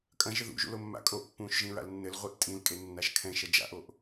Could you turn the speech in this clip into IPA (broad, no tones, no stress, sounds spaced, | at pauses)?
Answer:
kʼ ɐ̃ ʒ ɘ ð ṵ ʒ ṵ l o mː a̰ kʼ o ʔ pː ũː ʃ ʒ ĩ ɹ a̰ l nː ɘ l ʁʷ i ʔ tʼ ĩ l kʼ e nː a ʃ kʰ ɛ̃ ʃ ɐ d͡ʒ a̰ ʔ o ʔ